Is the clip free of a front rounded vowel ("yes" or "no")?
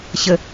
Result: yes